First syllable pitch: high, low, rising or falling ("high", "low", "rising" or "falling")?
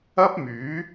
high